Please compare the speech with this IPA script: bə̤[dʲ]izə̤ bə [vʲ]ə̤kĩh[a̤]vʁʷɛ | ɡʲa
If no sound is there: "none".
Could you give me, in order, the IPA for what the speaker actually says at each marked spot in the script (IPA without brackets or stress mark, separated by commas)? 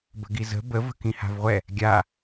ɡ, v, a̤